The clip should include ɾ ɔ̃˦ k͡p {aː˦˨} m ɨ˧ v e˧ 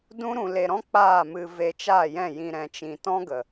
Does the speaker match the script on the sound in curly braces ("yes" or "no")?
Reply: yes